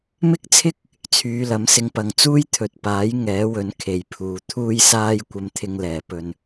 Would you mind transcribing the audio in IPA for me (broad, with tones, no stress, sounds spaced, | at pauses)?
m ɪ˥ k̚ t͡sʰ ɪ˥ k̚ | t͡sʰ yː˨˧ l ɐ˨˥ m s ɪ˧ ŋ p ɐ˨ ŋ t͡s uː˥ j t̪ʰ ɵ˨ t̚ p aː˨˥ j ŋ ɛː˨˥ w ɵ˨˥ n kʰ e˨ j pʰ uː˨ t̪ʰ uː˥ j s aː˥ j kʷ ɐ˧ m t̪ʰ ɪ˧ ŋ l ɛː˨˩ p ɵ˨ n